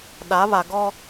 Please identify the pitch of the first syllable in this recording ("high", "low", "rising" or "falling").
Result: rising